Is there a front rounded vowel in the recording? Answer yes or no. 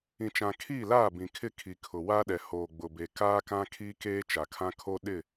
no